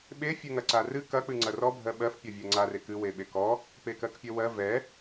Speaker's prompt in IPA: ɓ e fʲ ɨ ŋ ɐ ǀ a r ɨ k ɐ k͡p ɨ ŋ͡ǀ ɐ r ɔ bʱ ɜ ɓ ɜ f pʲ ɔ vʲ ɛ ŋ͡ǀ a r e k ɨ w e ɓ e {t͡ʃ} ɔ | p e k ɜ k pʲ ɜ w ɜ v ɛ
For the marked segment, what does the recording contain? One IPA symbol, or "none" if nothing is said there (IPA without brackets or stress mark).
k